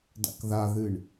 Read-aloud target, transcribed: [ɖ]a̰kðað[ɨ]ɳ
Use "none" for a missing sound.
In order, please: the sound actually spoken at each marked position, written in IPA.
d, ɨ

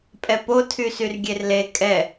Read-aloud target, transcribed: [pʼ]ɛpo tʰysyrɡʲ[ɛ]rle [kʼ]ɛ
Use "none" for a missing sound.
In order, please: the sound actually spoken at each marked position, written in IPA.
pʼ, e, kʼ

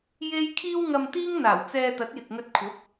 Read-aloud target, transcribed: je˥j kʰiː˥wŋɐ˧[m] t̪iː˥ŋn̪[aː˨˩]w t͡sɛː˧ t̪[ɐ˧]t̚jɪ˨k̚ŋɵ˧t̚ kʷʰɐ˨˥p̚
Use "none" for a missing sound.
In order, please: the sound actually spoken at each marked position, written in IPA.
m, aː˨˩, ɐ˨˥

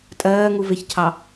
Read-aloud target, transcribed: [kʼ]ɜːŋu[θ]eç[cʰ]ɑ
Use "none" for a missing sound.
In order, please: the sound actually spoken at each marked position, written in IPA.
tʼ, v, cʰ

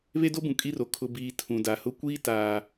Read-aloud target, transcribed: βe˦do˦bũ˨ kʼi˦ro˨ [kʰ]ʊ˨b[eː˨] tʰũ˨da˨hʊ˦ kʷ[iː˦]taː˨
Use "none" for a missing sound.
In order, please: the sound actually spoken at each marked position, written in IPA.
kʰ, iː˨, iː˦

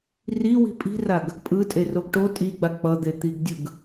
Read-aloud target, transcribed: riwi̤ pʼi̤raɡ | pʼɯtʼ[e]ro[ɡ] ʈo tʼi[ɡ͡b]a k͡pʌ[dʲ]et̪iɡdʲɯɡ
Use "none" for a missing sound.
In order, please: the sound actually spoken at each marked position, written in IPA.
e, ɡ, ɡ͡b, d̪

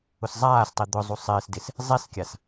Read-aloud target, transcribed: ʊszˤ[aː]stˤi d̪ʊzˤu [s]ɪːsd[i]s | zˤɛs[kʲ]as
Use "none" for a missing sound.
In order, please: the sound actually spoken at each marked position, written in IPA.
aː, sˤ, ɪ, kʲ

